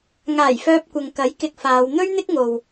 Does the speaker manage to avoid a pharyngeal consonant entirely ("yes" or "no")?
yes